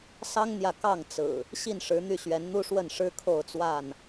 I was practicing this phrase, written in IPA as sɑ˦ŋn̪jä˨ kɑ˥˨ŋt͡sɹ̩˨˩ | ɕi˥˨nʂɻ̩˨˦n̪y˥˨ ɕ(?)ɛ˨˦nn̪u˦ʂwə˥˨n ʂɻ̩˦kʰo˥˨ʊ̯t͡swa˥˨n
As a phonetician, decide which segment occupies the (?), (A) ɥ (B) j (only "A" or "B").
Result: A